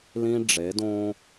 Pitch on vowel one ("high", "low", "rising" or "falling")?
high